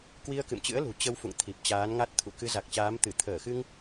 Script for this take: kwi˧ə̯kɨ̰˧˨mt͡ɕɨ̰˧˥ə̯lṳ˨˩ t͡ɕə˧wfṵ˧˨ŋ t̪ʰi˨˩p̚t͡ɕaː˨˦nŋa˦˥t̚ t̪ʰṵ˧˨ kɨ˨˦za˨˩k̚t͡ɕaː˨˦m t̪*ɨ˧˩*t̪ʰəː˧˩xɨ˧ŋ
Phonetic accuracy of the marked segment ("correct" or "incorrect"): correct